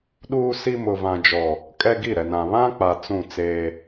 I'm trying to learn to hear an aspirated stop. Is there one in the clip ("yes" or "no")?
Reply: no